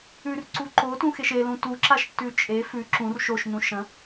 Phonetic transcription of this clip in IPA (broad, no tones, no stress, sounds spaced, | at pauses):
ʉ r ǀ u ǃ o t ũ x e ʃ e l ũ t u ǁ a ʃ tː ʉ t͡ʃʼ e f ʉ ǁ ũ r ʃ o ʃ n ũ ʃ ɐ̃